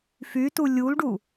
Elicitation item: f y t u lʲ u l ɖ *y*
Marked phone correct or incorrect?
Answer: incorrect